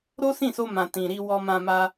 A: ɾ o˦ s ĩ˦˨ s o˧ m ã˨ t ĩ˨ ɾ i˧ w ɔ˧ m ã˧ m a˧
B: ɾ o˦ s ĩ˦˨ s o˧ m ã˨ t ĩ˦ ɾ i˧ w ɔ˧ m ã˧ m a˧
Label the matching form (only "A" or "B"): A